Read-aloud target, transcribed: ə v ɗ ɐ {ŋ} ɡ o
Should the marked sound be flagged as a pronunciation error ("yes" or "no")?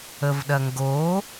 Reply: no